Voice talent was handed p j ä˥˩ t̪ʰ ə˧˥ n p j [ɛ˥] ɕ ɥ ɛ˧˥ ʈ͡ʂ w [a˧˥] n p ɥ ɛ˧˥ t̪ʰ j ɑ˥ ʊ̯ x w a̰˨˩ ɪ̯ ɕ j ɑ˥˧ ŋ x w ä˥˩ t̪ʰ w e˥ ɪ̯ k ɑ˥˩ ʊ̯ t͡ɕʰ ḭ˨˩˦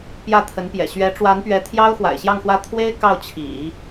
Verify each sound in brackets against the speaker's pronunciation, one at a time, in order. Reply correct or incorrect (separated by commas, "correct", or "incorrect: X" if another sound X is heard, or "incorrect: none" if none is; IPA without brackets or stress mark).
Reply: incorrect: ɛ̰˨˩, correct